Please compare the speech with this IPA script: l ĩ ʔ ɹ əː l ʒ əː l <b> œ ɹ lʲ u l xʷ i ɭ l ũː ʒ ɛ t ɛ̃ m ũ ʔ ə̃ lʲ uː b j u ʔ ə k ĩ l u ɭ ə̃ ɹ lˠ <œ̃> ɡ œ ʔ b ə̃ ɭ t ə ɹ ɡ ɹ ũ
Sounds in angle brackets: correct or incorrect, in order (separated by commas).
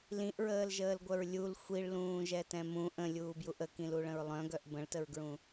incorrect, correct